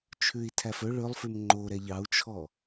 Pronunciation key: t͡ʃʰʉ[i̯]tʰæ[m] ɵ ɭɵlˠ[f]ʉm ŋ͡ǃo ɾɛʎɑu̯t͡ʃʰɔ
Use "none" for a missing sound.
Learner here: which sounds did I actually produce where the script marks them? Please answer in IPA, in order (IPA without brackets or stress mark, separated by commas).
i̯, f, f